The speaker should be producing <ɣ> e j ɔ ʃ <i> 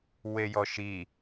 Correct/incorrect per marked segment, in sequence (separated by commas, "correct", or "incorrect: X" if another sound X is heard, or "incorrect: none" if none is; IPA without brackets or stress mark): incorrect: w, correct